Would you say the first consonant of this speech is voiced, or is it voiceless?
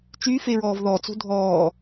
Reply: voiceless